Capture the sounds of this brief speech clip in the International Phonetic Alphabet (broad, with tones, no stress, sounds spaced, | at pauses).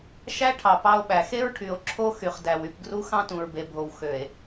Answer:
ʃ æ˦ ʈʰ ɑ˨ p ɑ˦ o̯ ɓ æ˨ x e˦ ɹ ʈʰ y˨ o̯ ǁʰ o˦ x y˨ χ d æ˨ w y˨ p ɡ r u˦ x ɑ̃˦ t ũ˨ ɹ b e˨ bʱ o˨ w x ø˨ e̯